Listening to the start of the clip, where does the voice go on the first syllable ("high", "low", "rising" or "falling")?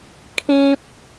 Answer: high